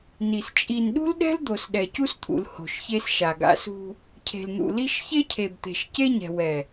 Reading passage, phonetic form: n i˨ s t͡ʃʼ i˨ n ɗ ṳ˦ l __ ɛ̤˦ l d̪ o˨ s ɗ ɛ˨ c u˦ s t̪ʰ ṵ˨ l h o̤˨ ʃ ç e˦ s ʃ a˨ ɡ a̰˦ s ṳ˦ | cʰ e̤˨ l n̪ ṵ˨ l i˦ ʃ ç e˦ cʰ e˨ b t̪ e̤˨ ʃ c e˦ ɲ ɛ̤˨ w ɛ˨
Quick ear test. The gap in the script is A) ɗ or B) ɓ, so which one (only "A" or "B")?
A